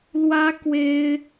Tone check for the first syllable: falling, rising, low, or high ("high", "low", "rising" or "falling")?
high